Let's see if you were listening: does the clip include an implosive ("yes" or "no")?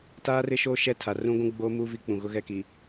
no